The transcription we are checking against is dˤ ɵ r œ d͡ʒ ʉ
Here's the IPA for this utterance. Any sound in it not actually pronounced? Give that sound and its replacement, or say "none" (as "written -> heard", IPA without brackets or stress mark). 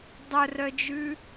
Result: none